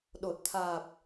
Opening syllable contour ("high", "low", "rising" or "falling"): low